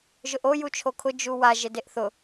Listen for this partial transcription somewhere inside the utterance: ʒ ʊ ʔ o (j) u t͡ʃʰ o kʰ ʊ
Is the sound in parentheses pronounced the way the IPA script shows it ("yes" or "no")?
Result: yes